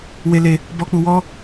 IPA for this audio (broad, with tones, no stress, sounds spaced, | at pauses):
w e˧ l e˧ | b ɔ˨ k͡p u˨ w ɔ˧